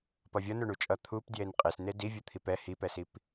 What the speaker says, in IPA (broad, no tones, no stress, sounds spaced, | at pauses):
p ʌ vʲ ʌ n o ɳ u t͡ʃʼ ʌ t̪ʰ u p d j e n qʼ e s n e d i vʲ u t̪ʰ i p ɛ h i p ɛ s i p